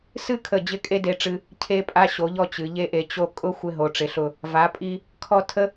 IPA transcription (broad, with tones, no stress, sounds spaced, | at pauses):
s ɨ˥ kʰ ə˧˩ d͡ʑ ɪ˥˧ kʼ e˥ d e˧ ʈ͡ʂ ɨ˧ | cʰ e˥ pʼ a˧ ɕ o˩˧ ʎ ɔ˧ t͡ɕ ɨ˩˧ ʎ e˥ ʔ e˧ t͡ɕ o˧ kʼ ʊ˥ xʷ ɪ˧ ɦ o˩˧ ʈ͡ʂ ɪ˩˧ ɬ ʊ˧˩ | v a˩˧ pʼ i˧ | kʰ ɔ˥˧ tʰ ə˥